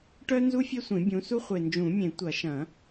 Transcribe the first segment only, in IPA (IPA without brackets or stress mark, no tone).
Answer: ʈ